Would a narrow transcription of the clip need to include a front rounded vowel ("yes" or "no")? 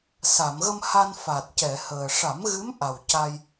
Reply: no